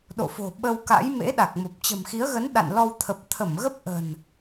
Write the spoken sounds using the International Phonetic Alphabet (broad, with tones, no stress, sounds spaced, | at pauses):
ɗ o̰˧˨ f o̤˨˩ ɓ ə˧ w k a̰˧˥ j m ḛ˧˥ ɗ a˨˩ k̚ m o˨˩ p̚ t͡ɕ ə̤˨˩ m x i˨˦ ə̯ ɣ ə˨˦ n ɗ a̰˧˨ n l ɔ˧ w t̪ʰ ə˨˩ p̚ t̪ʰ ə˧˩ m ɣ ə˦˥ p̚ ʔ ə̤˨˩ n